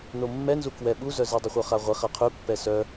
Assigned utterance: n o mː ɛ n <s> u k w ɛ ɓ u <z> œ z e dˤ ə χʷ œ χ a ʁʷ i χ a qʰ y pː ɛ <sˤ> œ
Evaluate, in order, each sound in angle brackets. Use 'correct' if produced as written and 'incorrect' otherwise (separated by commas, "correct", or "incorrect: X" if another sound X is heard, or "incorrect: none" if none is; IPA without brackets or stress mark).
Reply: incorrect: z, correct, incorrect: s